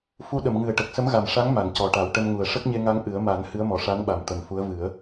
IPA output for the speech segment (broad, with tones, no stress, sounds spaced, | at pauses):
f u˧ ɗ ə˨˩˨ m ŋ ɨ˨˩ ə̯ ʈ ə˨˩ k̚ s ə˧˥ m ɣ a˨˩ m ʂ a˧˥ ŋ m a˨˩˨ n c ɔ˨˩ ʈ a˨˩˦ w ʈ ə˧ m ŋ u˨˩ ə̯ ʂ ə˦˥ k̚ ɲ e˧ ŋ a˧ ŋ ʔ ɨ˨˩˦ ə̯ m a˨˩˦ n h ɨ˧˥ ə̯ m ɔ˨˩ ʂ a˧˥ n ɓ a˨˩ m t̪ ə˨˩ m f u˧˥ ə̯ v ɨ˨˩˦ ə̯